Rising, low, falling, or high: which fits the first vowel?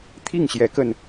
falling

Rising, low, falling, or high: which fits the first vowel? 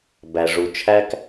low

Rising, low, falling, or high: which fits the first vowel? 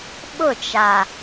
falling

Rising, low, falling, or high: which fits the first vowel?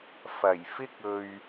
low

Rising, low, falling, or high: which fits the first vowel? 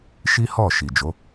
high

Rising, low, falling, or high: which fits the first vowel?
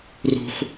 high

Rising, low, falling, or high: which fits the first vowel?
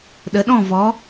rising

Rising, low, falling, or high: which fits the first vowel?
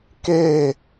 falling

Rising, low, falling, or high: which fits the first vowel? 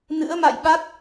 rising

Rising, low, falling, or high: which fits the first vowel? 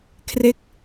falling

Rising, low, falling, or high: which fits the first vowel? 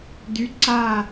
rising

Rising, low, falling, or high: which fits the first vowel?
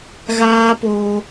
high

